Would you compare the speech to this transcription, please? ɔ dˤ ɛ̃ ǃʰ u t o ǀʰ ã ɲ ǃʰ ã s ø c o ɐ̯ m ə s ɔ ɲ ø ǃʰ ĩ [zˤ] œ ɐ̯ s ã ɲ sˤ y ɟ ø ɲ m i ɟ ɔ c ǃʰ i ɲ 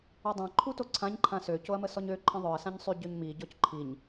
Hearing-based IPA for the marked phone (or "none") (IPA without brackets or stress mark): ðˤ